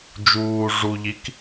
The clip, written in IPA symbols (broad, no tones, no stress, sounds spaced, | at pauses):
d͡ʒ uː ʐ u ʎ i k